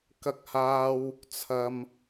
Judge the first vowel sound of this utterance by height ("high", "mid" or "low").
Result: low